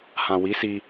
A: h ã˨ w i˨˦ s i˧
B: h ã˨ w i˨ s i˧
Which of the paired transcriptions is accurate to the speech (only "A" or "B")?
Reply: A